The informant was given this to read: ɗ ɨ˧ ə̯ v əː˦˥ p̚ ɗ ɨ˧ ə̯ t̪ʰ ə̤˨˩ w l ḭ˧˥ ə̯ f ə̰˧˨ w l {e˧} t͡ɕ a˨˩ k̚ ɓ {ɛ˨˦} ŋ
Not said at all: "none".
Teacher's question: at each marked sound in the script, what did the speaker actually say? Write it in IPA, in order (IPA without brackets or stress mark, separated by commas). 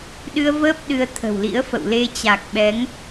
e˧, ɛ˨˦